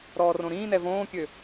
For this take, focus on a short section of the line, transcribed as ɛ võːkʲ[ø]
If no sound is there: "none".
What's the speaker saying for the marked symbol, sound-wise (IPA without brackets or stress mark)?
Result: ø